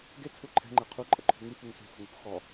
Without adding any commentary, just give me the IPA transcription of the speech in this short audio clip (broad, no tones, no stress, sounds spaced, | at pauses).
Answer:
ɡ e t͡sʰ u ǃʰ ɛ̤ ŋ͡ǃ e qʰ u ǃʼ ə ǃʰ ṳ ŋ y f u ŋ s ṳ f ə̤ ŋ u p x ɔ